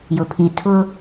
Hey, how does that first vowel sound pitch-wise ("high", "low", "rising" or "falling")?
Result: low